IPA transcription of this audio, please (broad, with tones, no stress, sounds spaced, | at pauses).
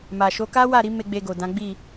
m a˨ ʃ o˨˦ k a˦ w a˦˨ ɾ i˨˦ m e˧ ɡ͡b e˧ ɡ o˨ d ã˨˦ ɡ͡b i˦˨